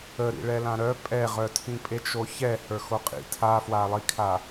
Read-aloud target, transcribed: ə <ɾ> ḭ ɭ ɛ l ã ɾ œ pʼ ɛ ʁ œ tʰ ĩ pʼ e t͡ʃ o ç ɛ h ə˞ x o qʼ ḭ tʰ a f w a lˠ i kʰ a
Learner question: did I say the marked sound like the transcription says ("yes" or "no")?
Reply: yes